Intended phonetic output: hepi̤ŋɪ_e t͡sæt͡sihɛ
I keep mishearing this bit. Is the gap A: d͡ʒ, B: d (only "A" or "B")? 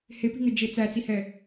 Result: A